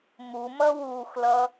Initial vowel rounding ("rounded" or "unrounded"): rounded